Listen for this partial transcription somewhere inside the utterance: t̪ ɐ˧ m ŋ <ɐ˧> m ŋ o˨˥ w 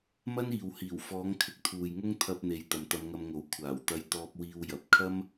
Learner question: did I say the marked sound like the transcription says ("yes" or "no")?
yes